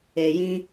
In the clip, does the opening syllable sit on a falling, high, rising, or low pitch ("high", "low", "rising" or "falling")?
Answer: low